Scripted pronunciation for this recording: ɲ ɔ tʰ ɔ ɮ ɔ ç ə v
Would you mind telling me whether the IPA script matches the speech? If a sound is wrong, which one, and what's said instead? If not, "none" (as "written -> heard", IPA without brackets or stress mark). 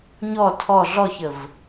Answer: none